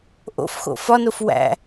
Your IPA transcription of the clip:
ʔ o̰ f x o̰ f ɒ n o f w æ̰

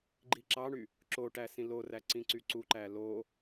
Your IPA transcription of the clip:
ɡ͡ǃ i ǁ ɑ ɳ y | ǁ o ʈ æ s ĩ l o r æ ǀ ĩ ǀ y ǀ u ǃ æ l o

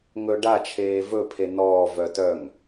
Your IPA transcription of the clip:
ŋ ɵ ɖ a t͡ʃʰ eː v ɵ pʰ e n ɔː v œ t œ ŋ

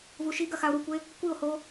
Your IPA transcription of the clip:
v u ʃ i ɡ ɐ x a o̯ ɾ u kʷ e | kʷ i o̯ h o

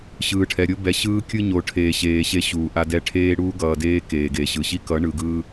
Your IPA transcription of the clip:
ɕ ɯː˨ ʈʰ ɛ˨ ɾʲ o˦ b ɛ˨ ɕ ɯː˦ kʲ ɯ˦ ɲ o˨ ʈʰ eː˨ ɕ eː˨ ɕ e˦ ɕ uː˨ ʔ a˦ d ɛ˦ ʈʰ eː˦ ɽ uː˦ ɡ ʌː˨ d eː˦ k eː˨ ɡ e˨ ɕ ɯ˨ ɕ i˦ k ʌ˨˦ ɳ ɯ˨ ɡ ɯː˦

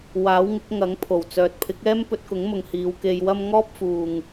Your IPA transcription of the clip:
w aː˨˥ w ŋ ɪ˨˥ k̚ ŋ ɐ˨˥ ŋ pʰ o˨˩ w t͡s œː˨ t̚ pʰ ɪ˨˥ k̚ ɛː˥ m p ɵ˧ t̚ k ʊ˨˥ ŋ m ʊ˨ ŋ h iː˧ w k e˧ j w ɐ˥ m ŋ ɔː˥ p̚ f uː˨ ŋ

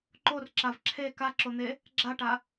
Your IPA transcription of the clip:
ǃ o r ǁ a v ǁʰ e k a ǁ o n̪ e | ɡ͡ǁ a ʈ a

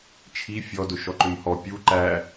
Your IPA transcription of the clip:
t͡ʃʰ i fʲ ɔ d ʊ ʃ ɔ ǃ ʏ m h ɔ pʲ u ǃ æ

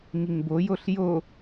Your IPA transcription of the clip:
ŋ i ŋ b o j o ɬ j o

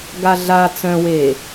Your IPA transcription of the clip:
ɡ a ɮ a t͡s œ̃ w eː

